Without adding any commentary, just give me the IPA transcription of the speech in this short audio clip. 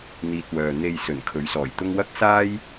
n̪ iː˨ t̚ w œː˨ n̪ e˨ j s ɵ˨˩ n kʰ ɵ˨˥ ɥ s ɔː˨˩ j t̪ ʊ˥ ŋ w ɐ˥ k̚ s aː˥ j

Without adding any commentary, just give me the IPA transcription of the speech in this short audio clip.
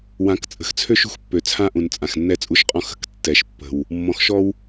w ã˨˦ k t͡sʼ ə̤˨ x t͡sʰ ø˦ ʃ ṳ˨ x pː ø˨ t͡sʰ ã˦ ʔ ũ˨ n t͡sʼ ã˨ x nː ɛ˦ t͡sʼ u˦ ʃ qʼ ɔ̃˦ x ə̤˨ k tː ɛ˨ ʃ pː ə̤˨ w | mː ɔ̃˨ x ʃ ɔ˦ w

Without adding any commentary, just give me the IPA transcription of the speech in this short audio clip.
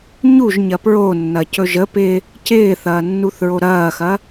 ɲ u ʒ ɲ ɐ p ɹ o nː ɐ c ɵ ʒ ə p ɪ | c ɪː θ ɐː nː u θ ɹ o ɾ ɐː x ɐ

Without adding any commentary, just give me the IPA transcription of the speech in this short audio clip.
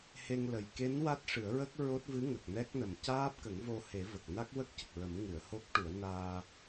h e˧ ŋ l ə˨˩ j k e˧˥ n w a˦˥ t̚ ʂ ɨ˨˩˦ ə̯ ɹ ə˦˥ k̚ ɹ o˦˥ t̚ v ɨ˧˥ ŋ ə˨˩ k̚ n ɛ˦˥ k̚ n ə˨˩ m c aː˦˥ p̚ k ə˨˩˦ ŋ v o˧ h e˨˩˦ v ə˨˩ k̚ n a˦˥ k̚ w ə˦˥ k̚ c ə˨˩ k̚ ɹ ə˨˩˦ m ŋ ɨ˨˩˨ ə̯ h o˦˥ k̚ ʈ u˨˩˦ ə̯ n aː˧

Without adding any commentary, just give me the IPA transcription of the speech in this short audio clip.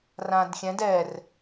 r ã d xʲ ɛ̃ d ɛ r

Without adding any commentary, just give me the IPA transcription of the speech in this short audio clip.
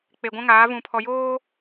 k͡p e˨ ɡʷ ã˦ ŋ aː˨˦ v ũ˨ pʰ ɔ˨ j oː˦

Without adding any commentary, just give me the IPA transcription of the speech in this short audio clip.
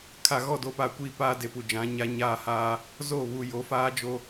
kʰ a˨ ɣ ɔ˦˨ d o˦ p a˦˨ kʷ iː˦ p aː˦ d e˨ p u˨ d͡ʒ ã˨˦ ɲ a˦ ɲ aː˦˨ h aː˦ | z o˦˨ β u˨ j o˨˦ f aː˦ d͡ʒ o˦

